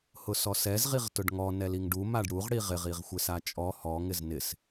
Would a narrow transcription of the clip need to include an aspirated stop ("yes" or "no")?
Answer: no